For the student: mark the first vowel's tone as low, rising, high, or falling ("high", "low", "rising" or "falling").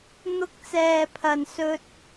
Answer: high